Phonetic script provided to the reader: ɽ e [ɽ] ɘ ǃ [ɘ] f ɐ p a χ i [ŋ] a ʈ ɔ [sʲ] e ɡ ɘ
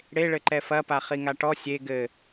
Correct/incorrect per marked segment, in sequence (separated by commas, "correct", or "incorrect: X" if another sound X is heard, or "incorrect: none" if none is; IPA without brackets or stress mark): incorrect: ɭ, incorrect: ɛ, correct, correct